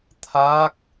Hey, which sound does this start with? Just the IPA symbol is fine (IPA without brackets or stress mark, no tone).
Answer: t̪ʰ